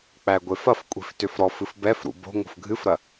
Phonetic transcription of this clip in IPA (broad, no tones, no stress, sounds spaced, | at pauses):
k͡p æ ɡʷ e f ɐ f kʷʼ i̤ f t ʏ f ɾ ɔ f ɨ f b ɛ f ɾ ṵ b o̤ ŋ o̤ f ɡʱ ɨ f ɾ ɐ